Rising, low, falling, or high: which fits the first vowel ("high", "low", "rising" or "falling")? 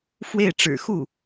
falling